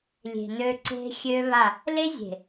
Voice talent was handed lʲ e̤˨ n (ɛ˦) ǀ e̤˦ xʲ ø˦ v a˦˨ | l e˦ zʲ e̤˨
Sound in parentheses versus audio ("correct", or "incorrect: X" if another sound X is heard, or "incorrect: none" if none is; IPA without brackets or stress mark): incorrect: ø˦